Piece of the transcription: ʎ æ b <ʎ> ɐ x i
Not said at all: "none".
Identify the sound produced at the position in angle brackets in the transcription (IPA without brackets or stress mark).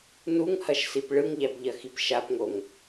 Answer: ʎ